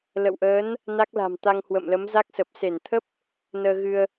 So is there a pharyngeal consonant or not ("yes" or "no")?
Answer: no